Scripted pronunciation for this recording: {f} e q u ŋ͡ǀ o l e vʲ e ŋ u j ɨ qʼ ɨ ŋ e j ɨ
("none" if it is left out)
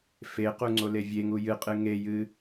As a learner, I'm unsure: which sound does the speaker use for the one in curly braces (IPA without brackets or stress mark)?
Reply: f